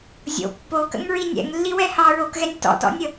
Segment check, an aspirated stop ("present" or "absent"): absent